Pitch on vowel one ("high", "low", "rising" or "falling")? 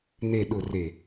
low